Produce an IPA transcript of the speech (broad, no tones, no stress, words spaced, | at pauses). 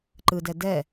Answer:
ǃɯdɛ dɛ